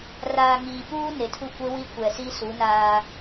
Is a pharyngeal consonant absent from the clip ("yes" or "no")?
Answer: yes